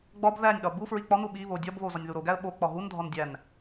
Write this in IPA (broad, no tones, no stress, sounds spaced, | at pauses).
ɡ͡b ɒ b ð æ nʲ ɗ ɒ b u f ɹ i k͡p ɒ n u ɓ i β o dʲ ɒ b β o z ɒ nʲ ð u ɾ o ɡ æ ə̯ ɓ o k͡p ɒ ɦ u n dʱ ɒ n dʲ æ n